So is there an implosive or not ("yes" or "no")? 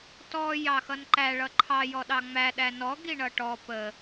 yes